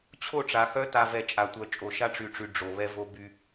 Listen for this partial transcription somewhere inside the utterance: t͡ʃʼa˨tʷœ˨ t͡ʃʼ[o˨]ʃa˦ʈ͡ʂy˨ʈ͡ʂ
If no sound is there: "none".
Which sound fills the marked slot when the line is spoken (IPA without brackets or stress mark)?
o˨